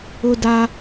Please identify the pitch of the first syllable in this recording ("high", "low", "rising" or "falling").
high